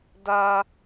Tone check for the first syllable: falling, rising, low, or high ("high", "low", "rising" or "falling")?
high